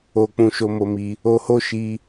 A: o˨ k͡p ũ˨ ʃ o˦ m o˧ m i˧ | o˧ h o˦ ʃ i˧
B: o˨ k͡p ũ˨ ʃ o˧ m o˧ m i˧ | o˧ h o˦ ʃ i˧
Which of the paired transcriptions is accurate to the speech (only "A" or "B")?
B